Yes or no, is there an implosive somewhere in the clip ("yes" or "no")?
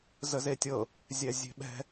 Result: yes